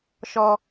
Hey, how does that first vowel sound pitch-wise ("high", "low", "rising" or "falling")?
low